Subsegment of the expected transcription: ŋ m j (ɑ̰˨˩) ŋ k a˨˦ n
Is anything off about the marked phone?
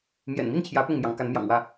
yes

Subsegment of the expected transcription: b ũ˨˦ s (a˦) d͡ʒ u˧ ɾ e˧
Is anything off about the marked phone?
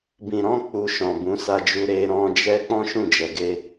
yes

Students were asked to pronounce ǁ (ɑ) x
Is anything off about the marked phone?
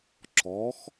yes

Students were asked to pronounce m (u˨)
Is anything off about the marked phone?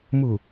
no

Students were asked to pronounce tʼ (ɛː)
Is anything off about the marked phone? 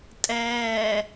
no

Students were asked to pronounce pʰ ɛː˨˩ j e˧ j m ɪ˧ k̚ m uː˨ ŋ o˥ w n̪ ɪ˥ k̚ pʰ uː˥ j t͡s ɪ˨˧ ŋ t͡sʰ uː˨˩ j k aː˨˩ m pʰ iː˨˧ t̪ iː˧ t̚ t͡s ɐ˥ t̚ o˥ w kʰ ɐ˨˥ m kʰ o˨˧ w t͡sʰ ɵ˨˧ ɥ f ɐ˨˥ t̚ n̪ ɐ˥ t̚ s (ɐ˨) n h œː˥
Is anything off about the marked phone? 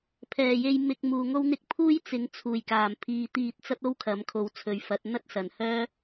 no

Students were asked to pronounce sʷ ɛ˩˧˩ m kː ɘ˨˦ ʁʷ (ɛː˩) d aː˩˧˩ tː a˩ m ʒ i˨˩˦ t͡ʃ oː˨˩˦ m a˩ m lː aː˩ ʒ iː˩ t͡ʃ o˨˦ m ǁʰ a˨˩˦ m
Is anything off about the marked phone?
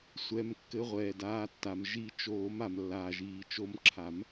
no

